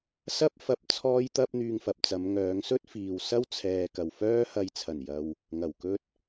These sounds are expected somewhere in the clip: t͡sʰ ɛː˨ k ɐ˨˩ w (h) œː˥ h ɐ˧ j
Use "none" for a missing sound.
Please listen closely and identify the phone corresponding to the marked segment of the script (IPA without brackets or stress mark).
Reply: f